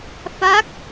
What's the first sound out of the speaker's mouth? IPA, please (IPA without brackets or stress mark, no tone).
f